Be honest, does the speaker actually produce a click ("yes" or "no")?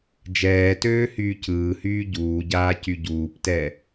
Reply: no